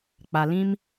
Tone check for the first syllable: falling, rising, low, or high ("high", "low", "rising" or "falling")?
low